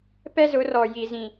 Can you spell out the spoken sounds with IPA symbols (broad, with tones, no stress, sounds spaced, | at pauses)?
p ɛ˦ z ʊ˨˦ r ɔ˨ j i˨ z ĩ˨